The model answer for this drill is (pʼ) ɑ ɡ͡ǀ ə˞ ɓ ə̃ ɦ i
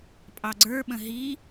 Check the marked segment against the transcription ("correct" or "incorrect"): correct